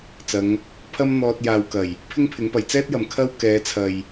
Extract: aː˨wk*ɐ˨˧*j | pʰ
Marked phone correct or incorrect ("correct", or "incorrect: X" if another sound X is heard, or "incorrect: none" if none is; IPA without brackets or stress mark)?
incorrect: ɐ˨˩